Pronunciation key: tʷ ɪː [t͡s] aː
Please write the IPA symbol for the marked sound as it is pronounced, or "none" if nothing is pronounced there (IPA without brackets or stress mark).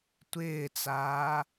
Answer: t͡s